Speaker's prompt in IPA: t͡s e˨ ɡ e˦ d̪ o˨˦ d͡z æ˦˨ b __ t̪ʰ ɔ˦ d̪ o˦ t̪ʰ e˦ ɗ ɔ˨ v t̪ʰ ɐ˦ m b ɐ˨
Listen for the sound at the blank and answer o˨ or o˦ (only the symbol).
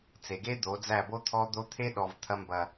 o˦